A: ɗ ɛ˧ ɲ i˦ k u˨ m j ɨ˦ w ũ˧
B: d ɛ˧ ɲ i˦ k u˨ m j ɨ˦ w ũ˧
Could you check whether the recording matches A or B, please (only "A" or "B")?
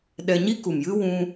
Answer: A